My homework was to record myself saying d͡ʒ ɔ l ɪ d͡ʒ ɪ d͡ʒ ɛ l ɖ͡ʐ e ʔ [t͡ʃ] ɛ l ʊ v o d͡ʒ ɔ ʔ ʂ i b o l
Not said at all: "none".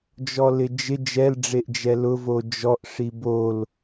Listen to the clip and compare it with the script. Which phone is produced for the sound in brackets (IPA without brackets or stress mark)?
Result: d͡ʒ